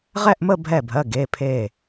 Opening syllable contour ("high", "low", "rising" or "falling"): falling